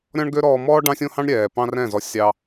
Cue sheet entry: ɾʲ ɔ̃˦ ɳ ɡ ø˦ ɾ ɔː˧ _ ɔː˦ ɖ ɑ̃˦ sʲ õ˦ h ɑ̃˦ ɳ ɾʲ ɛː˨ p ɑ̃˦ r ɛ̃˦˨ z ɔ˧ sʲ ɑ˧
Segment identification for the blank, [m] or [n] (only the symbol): m